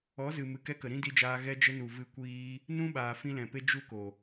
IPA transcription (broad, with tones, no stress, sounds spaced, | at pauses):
ɔ˨˦ z ɨ˨ m ɨ˨ k ɛ˧ k ə˨ ɾ ĩ˦ d i˧ d͡ʒ aː˧ ɣ ɛ˧ d͡ʒ ə˧ n u˨ v ɨ˧ kʷ iː˦ | n ũ˦ ɓ aː˨ f ĩ˧ l ɛ̃˨ p e˦ d͡ʒ u˦ k o˨